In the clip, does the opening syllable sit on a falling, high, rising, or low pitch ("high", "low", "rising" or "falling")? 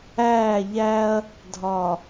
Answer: falling